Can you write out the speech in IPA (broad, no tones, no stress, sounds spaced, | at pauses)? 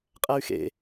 qʼ æ y̯ x ḛ